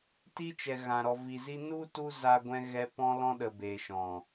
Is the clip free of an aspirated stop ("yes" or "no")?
yes